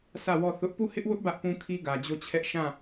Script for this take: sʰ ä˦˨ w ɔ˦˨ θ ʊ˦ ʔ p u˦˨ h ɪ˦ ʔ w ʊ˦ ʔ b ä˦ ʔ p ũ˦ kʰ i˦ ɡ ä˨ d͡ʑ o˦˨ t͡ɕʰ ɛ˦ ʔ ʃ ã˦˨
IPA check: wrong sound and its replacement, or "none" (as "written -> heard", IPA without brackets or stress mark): none